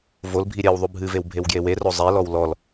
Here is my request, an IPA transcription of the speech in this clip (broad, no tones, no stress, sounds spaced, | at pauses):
v o l bʱ i ɾʲ ɛ w ðˤ u bʱ ɨ v e w bʱ e w ɡ j e w e r o zˤ ɛ l ɔ w l ɔ l